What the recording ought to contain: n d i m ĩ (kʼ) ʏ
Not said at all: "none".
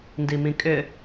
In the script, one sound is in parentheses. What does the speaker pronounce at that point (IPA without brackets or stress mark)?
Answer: kʼ